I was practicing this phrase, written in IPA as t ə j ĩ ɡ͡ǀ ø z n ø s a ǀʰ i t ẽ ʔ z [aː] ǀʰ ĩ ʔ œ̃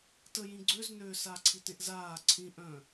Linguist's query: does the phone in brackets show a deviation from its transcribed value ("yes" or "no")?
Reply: no